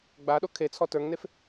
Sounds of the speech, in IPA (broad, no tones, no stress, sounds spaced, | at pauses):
ɡ͡b a ɗ o kʰ e t͡sʰ ɔ t ə˞ ŋ n e f